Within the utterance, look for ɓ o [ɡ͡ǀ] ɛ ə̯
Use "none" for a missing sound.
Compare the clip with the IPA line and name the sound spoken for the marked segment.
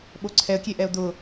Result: ǀʰ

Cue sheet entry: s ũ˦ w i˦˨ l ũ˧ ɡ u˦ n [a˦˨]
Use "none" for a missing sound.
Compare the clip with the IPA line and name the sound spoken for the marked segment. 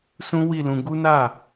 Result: a˦˨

